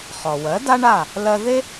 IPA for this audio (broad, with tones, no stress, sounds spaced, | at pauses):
χ ɔ˩ w ɜ˩˥ d a˥ ɳ a˥˩ | l ɜ˧ ð e˥